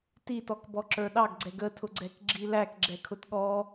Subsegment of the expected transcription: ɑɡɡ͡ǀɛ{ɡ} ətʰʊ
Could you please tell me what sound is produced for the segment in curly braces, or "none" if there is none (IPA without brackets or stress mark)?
ɡ